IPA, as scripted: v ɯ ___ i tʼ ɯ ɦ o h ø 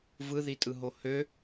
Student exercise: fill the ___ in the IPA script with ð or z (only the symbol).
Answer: ð